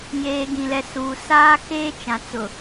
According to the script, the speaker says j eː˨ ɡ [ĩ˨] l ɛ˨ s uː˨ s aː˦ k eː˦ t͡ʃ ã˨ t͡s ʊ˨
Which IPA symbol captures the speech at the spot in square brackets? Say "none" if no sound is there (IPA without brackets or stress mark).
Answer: ĩ˨